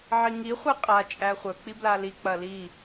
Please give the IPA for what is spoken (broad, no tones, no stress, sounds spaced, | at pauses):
ʕ i ŋ i χʷ ɛ qʼ a t͡ʃʼ æ χʷ œ k͡p i b l a l i k͡p ɐ l i